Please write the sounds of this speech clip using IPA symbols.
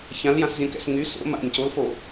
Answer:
çãljãszʲõkɛ̰s ŋy so̰ ma̰nʲ colfo

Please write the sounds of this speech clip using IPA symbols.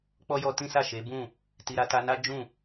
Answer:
k͡pɔ˦jɔ˧tĩ˦ sa˦˨ʃe˨˦bũ˦˨ | ti˧ɾa˦ ta˧na˦d͡ʒũ˦˨

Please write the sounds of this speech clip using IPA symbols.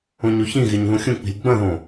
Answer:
õɲoçĩɣeɲ ðũxʲũk͡pi̤lʲ ɡ͡bɐ̃ðõ

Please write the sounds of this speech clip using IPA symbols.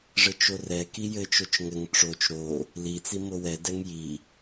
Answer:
ʐɘt͡ʃorɛ kijɘ t͡ʃot͡ʃŋɘŋ ʈ͡ʂot͡ʃ ɾo | lit͡si mowɛ dɛŋji

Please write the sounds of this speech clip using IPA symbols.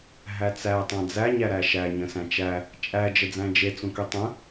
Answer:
ɦæt͡sæ tˤãd͡zæ ɲæɾæʃæ ɲə̃sæ̃t͡ʃæ | t͡ʃʼæ d͡ʒəd͡zæ̃d͡ʒe t͡sũkytˤə̃

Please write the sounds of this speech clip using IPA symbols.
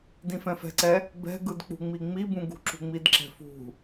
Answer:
dĩfɛ̃fɛ̤ǀɛ | bɛ̤ɡɯd k͡pṳŋ͡miŋ͡mibũ ɡṳǁṳŋ͡midǁɛ̤ fṳ

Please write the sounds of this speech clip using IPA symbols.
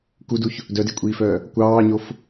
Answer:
kuduç | dœdekʷʼiːfœː | kʷɑːɲof

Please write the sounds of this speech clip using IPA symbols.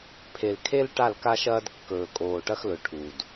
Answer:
pʰe˨lkʰe˦l ʈa˦˨lka˦ʃɐː˦d kːɵː˨kʼoː˨ʈɐ˦xlɵ˨ ʈʰu˨d

